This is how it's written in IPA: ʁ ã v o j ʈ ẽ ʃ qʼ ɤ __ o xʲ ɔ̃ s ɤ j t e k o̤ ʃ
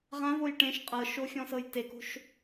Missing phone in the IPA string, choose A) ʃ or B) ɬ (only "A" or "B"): A